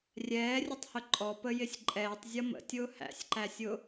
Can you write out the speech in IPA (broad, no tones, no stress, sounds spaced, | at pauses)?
rʲ ɛː rʲ ʊ tˤ h ʊ ǃʼ ɔ p ə j ɪ sʲ ǃʼ ɛː tˤ zʲ ʌ m ə̰ tʲ ʊː h æ̰ sʲ ǃ æ sʲ ʊ